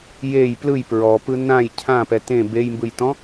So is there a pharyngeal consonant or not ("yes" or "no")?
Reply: no